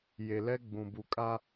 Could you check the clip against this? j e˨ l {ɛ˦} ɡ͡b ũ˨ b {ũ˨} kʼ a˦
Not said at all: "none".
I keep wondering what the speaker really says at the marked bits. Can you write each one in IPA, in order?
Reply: ɛ˦, u˨

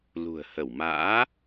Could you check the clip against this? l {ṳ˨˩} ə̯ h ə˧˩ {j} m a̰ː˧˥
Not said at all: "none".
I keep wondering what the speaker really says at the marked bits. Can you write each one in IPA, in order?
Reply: ṳ˨˩, w

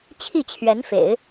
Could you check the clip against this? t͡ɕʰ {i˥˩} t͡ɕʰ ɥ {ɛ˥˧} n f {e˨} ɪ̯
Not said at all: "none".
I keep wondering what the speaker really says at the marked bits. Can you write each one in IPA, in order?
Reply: i˥˩, ɛ˧˥, ḛ˨˩˦

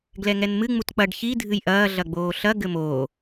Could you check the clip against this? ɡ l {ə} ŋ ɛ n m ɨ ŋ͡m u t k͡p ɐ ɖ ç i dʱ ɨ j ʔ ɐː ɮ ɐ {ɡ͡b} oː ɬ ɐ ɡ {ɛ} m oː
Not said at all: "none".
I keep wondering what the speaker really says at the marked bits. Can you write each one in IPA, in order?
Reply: ɛ, ɡ͡b, ɘ

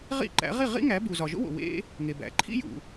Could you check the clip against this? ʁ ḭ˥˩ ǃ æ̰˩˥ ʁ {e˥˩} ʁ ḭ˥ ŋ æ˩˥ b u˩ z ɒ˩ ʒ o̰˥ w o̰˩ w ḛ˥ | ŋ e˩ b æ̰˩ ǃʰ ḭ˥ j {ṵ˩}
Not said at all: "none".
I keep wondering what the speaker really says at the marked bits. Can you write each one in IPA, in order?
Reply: i˥˩, ṵ˩

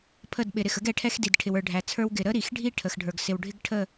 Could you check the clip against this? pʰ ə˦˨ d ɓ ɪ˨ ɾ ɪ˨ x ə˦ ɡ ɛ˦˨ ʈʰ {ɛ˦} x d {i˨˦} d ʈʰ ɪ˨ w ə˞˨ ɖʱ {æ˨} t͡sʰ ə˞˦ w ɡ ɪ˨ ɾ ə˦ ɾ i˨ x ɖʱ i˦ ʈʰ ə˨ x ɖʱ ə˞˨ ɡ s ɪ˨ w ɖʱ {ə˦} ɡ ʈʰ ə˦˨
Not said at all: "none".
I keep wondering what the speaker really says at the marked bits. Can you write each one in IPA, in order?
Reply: ɛ˦, i˨, æ˨, ɪ˦

